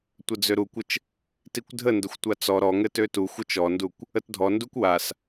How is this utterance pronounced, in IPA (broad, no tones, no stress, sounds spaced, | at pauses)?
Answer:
tʷ ə d͡z ø ɾ u kʷ ə t͡ʃ | t i kʷ dʱ ə n d ə xʷ tʷ a t͡s ɔ ɾ ɔ ŋ ɘ t ø t u xʷ ɘ t͡ʃ ɔ n d u kʷ | ə t dʱ ɔ n d u kʷ w a s